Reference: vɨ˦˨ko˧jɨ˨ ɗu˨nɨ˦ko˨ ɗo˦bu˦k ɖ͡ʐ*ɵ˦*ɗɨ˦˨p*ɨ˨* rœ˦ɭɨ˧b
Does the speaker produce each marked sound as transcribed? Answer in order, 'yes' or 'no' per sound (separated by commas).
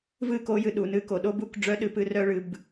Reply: no, no